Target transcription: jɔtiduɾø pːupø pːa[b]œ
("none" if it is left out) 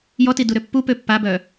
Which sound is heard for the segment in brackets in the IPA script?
b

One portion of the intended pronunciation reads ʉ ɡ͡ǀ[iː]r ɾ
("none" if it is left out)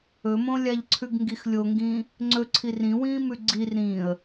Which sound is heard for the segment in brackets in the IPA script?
i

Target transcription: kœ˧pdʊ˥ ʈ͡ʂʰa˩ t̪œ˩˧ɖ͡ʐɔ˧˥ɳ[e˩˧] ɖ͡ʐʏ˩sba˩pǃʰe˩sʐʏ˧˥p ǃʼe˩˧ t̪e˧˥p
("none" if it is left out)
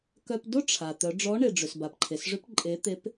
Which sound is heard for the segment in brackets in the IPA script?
e˩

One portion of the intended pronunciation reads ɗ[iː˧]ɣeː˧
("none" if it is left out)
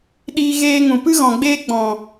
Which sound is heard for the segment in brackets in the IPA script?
iː˧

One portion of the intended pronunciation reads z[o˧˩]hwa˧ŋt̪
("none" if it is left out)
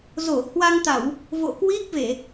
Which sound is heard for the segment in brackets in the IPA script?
o˧˩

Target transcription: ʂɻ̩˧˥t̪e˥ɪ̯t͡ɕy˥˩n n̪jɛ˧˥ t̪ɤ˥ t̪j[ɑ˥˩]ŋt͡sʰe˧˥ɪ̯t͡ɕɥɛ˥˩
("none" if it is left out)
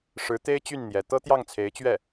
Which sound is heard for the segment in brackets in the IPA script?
ɑ˥˩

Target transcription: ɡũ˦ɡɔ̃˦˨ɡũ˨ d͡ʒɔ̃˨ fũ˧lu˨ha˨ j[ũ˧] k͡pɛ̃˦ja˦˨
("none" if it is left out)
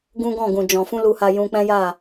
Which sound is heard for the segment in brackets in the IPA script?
ũ˧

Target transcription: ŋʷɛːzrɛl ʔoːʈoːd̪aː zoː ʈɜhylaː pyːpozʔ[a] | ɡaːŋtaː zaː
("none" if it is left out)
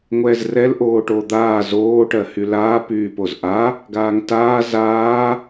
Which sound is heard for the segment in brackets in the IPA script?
a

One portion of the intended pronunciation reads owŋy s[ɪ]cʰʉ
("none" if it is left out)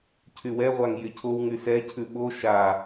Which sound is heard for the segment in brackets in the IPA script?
ɛ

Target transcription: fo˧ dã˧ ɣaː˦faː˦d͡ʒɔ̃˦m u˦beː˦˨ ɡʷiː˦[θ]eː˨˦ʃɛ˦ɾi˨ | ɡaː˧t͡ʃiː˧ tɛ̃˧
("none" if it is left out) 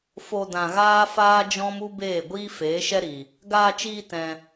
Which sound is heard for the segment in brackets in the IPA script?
f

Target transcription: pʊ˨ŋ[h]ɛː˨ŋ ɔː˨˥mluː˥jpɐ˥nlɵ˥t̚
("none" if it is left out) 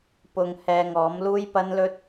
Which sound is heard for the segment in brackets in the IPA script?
h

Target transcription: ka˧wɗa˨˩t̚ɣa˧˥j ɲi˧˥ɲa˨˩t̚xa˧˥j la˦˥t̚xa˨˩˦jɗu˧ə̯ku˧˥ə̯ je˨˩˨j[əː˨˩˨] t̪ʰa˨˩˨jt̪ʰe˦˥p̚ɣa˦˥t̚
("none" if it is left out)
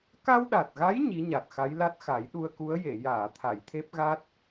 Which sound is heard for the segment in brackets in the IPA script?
aː˨˩˨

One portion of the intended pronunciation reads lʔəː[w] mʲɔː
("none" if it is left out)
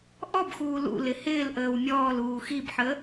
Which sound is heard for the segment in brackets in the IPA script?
w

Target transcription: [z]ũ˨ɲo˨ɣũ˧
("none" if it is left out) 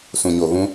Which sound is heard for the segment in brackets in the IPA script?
s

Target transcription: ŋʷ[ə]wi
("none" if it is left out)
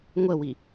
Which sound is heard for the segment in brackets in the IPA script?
ə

